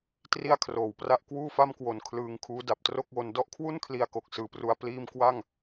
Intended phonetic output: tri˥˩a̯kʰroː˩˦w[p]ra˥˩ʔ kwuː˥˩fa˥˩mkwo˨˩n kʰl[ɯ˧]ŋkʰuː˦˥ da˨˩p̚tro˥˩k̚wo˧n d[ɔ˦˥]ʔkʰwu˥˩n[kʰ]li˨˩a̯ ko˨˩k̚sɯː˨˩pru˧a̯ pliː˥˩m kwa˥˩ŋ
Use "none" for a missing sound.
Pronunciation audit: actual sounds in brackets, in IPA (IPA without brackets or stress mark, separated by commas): p, ɯː˧, ɔ˦˥, kʰ